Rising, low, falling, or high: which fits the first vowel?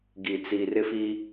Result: low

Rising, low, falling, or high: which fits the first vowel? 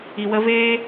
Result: low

